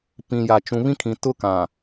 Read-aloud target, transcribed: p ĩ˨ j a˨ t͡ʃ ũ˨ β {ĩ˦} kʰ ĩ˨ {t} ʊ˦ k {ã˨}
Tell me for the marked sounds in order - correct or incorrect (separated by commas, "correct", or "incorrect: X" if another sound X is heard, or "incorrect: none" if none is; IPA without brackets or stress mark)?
correct, correct, correct